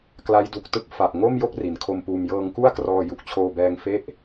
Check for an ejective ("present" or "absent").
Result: absent